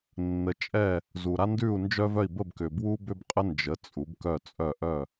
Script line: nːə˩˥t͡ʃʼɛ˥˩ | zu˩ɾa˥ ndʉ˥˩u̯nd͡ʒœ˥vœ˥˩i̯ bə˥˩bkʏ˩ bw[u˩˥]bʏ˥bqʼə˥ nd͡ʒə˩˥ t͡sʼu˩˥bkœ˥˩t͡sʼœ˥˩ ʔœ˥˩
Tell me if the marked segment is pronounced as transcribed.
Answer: no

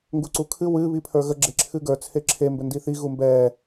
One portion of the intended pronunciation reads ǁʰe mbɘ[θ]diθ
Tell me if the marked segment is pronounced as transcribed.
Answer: no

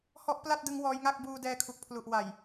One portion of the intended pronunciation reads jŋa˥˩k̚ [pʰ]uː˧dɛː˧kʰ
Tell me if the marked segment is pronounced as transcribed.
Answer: no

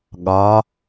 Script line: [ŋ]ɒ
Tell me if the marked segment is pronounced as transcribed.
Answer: no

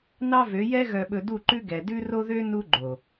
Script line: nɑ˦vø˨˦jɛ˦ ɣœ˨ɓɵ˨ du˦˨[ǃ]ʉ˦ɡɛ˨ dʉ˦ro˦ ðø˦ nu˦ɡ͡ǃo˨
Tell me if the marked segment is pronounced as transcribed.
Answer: yes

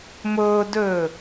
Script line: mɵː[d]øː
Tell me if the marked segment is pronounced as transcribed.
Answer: yes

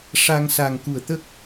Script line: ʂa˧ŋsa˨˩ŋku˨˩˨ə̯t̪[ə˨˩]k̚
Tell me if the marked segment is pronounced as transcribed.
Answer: no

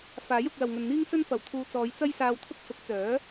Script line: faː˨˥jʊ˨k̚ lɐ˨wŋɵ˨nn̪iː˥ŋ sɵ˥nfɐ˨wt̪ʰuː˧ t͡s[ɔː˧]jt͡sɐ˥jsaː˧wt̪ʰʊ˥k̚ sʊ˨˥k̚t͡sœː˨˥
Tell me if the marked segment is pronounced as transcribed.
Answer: no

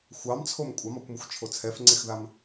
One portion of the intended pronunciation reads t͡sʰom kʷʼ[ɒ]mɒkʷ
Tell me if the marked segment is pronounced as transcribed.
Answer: no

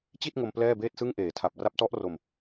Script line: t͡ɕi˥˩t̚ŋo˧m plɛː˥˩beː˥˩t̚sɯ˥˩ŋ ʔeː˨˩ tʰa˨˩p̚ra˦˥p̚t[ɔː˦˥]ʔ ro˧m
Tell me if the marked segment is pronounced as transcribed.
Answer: no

